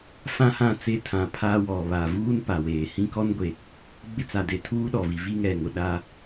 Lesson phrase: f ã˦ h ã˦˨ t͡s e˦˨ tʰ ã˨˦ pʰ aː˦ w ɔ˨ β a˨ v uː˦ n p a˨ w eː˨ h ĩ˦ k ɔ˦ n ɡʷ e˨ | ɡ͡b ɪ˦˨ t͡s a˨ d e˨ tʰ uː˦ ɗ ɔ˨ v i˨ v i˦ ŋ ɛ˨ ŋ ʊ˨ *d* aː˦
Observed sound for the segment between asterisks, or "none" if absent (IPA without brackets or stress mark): ɗ